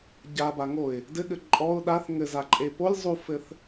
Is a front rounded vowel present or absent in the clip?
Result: absent